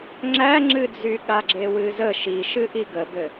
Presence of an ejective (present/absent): absent